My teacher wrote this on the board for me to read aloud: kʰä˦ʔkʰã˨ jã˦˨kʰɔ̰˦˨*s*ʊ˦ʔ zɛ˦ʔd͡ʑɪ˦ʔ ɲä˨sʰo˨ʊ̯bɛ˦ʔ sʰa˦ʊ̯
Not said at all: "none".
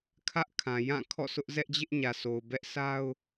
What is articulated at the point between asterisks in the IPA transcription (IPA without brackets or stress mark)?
s